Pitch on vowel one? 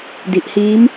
low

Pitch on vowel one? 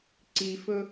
low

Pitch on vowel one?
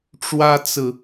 high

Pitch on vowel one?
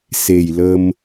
low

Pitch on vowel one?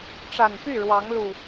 low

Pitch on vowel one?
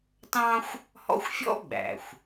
high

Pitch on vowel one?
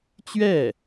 falling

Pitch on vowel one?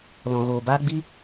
low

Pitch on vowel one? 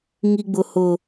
high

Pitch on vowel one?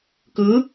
rising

